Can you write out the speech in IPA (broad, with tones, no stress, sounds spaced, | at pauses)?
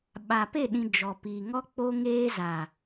ɓ a˨ p e˦˨ ɗ ĩ˨ d͡ʒ ɔ˨ p i˨ ŋ ɔ˦ k͡p o˦ ŋ eː˦ z a˨